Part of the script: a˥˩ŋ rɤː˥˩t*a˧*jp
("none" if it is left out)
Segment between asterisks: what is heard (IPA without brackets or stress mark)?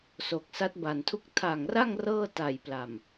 a˨˩